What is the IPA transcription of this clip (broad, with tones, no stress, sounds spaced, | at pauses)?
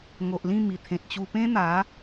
ŋ o˨ ʔ l ĩ˥˧ m i˨˩ t̪ʰ ẽ˨ t̚ t͡ɕ u˧ p ẽ˦ n̪ a˨˦